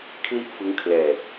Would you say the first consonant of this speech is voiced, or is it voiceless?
voiceless